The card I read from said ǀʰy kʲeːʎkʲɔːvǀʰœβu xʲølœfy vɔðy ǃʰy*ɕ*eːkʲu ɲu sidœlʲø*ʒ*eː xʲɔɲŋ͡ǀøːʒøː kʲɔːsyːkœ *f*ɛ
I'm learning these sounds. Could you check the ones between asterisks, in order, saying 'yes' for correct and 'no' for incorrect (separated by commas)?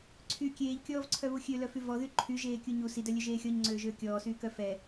no, yes, yes